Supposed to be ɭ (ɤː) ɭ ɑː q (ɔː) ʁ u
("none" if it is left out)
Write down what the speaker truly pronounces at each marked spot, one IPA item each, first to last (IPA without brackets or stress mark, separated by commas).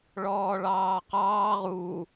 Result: ɔː, ɑː